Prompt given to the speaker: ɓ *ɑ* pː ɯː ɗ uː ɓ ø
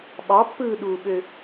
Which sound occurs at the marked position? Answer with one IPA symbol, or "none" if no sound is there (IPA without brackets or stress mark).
ɑ